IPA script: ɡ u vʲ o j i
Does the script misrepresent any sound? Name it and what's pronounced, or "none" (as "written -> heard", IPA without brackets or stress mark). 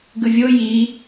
u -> ɯ